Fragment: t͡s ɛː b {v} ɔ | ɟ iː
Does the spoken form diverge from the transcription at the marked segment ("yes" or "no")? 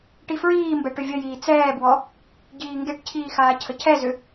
yes